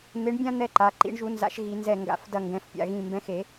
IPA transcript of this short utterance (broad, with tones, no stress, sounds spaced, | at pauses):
n̪ e˨˥ ɳ bʲ ã˦ n̪ ɛ˦ ǃ a˩˧˩ ǃ ḭ˨˥ ɳ ʒ u˨˥ n z a̰˨˥ ʃ ɣ i˨˩˦ n z ɛ˧˩ ŋ ɡ a̰˨˩˦ f d ɐ˧˩ ŋ ɡ ɛ̃˩˧˩ f pʲ a̰˧˩ ɣ ĩ˧˩ m b ɛ̃˨˥ x e˨˩˦